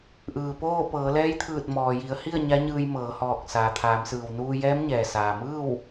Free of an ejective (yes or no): yes